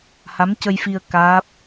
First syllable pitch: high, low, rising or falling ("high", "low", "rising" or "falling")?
rising